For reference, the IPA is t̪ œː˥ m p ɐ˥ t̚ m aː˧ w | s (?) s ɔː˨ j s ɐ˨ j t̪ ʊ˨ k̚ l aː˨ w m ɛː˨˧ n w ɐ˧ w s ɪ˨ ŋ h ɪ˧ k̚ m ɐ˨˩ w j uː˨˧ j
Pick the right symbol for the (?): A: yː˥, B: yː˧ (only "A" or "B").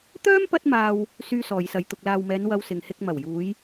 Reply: B